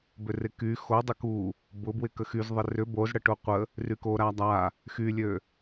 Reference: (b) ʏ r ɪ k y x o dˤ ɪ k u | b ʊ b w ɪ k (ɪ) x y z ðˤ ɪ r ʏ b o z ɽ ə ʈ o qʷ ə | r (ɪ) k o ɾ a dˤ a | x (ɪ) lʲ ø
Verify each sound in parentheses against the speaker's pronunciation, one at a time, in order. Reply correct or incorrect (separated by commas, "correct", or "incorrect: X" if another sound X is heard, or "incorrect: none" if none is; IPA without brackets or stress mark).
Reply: correct, incorrect: ə, incorrect: y, incorrect: y